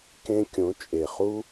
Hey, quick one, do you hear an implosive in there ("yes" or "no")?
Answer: no